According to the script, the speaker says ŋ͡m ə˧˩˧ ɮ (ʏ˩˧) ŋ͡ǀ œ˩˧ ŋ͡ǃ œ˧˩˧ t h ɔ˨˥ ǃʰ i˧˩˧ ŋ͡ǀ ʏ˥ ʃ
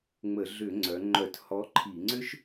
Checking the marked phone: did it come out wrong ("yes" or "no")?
yes